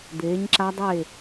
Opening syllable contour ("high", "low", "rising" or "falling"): rising